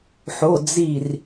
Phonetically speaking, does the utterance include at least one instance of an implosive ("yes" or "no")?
no